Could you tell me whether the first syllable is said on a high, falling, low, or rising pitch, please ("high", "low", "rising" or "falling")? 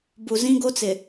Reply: low